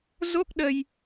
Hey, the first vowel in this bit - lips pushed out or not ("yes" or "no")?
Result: yes